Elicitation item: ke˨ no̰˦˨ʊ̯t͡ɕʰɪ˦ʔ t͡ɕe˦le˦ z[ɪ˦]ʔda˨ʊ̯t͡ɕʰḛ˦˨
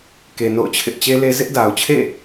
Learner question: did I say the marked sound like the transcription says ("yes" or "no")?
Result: yes